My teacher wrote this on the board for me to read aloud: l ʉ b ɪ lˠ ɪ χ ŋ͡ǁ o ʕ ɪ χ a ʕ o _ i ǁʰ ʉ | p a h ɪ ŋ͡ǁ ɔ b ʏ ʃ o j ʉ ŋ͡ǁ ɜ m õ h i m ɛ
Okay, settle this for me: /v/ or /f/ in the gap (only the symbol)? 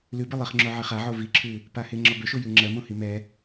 v